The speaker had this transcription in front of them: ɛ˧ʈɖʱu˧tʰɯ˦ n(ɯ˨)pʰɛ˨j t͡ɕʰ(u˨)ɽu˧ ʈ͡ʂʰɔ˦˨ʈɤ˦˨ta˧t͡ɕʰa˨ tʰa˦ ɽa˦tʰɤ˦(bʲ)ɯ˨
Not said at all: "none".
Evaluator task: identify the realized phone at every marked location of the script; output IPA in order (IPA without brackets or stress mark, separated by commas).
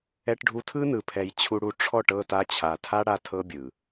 ɯ˨, u˧, bʲ